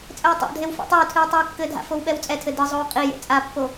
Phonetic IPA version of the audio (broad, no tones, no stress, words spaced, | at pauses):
t͡sʼɘwtˤa̰dʱew fa̰tˤewtʰɨw tˤiwkːɘdʱa̰ fowɓɛwt͡sʼɛtʰɘ dɨzˤow qʼijḛ t͡sʼapːo